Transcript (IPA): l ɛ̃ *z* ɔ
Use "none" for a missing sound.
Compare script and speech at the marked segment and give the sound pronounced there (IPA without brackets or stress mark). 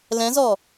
z